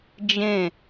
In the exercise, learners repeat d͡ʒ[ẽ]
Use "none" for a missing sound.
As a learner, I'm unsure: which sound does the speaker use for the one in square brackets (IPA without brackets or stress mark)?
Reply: ẽ